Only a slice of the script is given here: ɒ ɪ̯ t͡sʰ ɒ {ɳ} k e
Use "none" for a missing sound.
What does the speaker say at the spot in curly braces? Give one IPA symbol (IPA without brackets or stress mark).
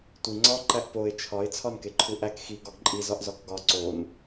n